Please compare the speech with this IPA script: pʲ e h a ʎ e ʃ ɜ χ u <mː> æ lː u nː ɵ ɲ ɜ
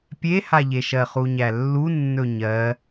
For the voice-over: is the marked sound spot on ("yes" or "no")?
no